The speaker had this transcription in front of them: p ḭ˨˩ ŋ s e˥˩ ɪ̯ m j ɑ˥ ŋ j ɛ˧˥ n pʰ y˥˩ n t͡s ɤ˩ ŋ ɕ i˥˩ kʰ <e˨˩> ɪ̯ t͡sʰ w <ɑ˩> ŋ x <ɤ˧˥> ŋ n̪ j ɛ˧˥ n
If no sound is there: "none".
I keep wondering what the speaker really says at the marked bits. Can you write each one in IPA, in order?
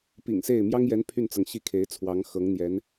e˧˥, ɑ˧˥, ɤ˧˥

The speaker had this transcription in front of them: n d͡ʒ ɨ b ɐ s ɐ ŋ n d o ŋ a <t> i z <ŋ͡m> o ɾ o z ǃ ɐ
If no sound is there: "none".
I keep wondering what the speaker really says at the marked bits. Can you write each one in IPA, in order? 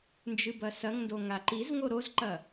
ǃ, ŋ

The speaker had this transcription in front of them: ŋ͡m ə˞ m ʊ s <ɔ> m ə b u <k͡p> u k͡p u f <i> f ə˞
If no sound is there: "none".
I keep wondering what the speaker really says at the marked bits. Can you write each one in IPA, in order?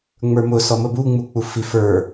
ɔ, ŋ͡m, i

